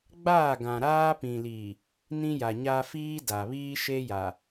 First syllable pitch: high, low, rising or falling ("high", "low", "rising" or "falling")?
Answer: falling